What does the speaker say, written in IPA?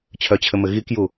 t͡ɕʰ œ t͡ɕʰ ɘ m ɘ ɣ i k j u

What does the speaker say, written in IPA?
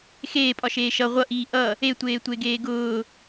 x eː pʼ ɒ ʃ eː ʃ ʌ ʁʷ ʌ ʔ iː ʔ ʌ | e tʷ eː tʷ e ɡ eː ɡ ʊː

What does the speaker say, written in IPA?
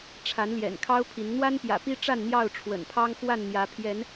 ʈ͡ʂʰ a˨˦ n l j ɛ̰˨˩ n kʰ ɑ˦ ʊ̯ pʰ i˨˦ n n̪ w a˦ n p j ä̰˨˩ p i˦ ʈ͡ʂ a˥˨ n n̪ j ɑ˥˨ ʊ̯ ʈ͡ʂʰ w ə̰˨˩ n pʰ ɑ˦ ŋ x w a˥˨ n n̪ j ä˨˦ pʰ j ɛ˨˦ n

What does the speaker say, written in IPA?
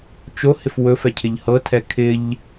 t͡ʃ o h ɪ f w ɵ f ɛ cʰ ɪ ʎ h ɤ tʰ ɛ kʰ ɪ ʎ

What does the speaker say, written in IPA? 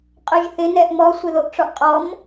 qʼ ʊ ʒ θ ɪ n ɛ ʔ m ɔ sʷ ɪ ð o ʔ ʈ͡ʂ ɔ ʔ qʼ ɔ m

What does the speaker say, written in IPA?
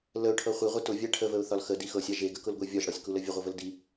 l ə ʊ̯ ʈʰ ɤ χʷ i ʁʷ i t ʊ vʲ a ʈʰ ə v ə ʊ̯ θ ɒ l x ə d i x ɤ sʲ a ʒ e ɡ ə k ʊ l ɡʷ e vʲ ɒ ʒ ɽ ɒ sʲ k u l ə vʲ ə ʁʷ ə v ə l d i

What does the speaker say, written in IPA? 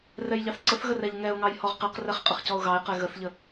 r ɛ j ʎ ɑ θ ǀ ə θ ɣ ə r ɛ ʎ ŋ ɛ ʊ̯ ŋ ɑ j h ɔ ʁ q ɛ q r ɛ χ qʼ ə χ c ɔ ʊ̯ ɣ ɑ ɪ̯ q ɛ ɣ ə θ ʎ ə

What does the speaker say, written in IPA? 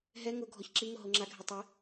ɦ ɛ ŋ ʊ ɡʱ ɔ ç ǁ i ŋ ʊ ɦ o ŋ͡ǁ a ɡʱ ɛ tˤ ɛ

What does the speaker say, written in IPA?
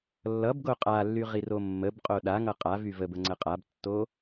lː ʌ b ɡ o qʼ a lː y ʁ i r o mː ə b qʼ o ɗ a ŋ ʌ qʼ a v y v ə b ə ŋ͡ǀ ə qʼ a b tː o

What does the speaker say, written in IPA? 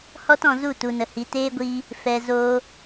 h ɔ˦ t ɔ̃˧ z u˦˨ t u˧ n ə˧ h i˧ t eː˦ ɡʷ iː˦ | f ɛ˧ z oː˧

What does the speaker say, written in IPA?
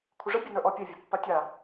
kʷʰ ɪ ʐ ə bʲ e n ə˞ ʔ ɔ pʲ e vʲ a pː a tʲ a

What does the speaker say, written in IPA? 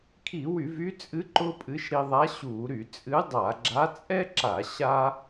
kʰ i˧˩˧ w y˧˩˧ v y˧˥ t͡sʼ ɨ˧˥ ǃ ʊ˥ pʼ ɨ˧˥ ʃ ɾ i˧ ðˤ a˧˥ ɕ u˧˩˧ ɾ y˧˩˧ t͡sʼ ɨ˧˥ dˤ a˧˩˧ ɡ͡ǁ a˧˥ t͡sʼ ɛ˥ ǁ a˧˩˧ ɕ a˥

